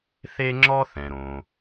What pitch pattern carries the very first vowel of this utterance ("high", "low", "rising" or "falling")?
high